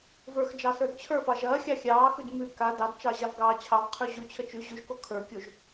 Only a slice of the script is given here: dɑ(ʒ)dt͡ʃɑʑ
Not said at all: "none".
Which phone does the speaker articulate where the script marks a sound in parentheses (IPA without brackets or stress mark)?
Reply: none